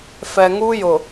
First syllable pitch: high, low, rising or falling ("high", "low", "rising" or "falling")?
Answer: low